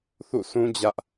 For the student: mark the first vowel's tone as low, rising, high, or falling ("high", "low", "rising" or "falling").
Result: falling